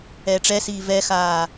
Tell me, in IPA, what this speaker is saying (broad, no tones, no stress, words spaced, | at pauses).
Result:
ɛːʈ͡ʂɛsiː vɛxaː